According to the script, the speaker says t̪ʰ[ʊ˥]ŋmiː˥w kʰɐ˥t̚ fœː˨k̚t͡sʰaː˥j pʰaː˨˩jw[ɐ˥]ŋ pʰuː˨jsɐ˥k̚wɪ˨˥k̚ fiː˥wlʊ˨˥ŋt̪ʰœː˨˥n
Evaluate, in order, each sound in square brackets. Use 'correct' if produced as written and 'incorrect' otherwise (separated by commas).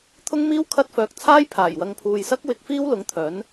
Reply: correct, incorrect